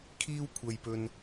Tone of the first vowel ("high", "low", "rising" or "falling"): high